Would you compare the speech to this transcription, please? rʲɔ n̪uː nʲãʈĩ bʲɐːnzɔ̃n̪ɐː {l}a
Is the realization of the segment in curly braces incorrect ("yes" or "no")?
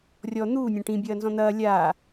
yes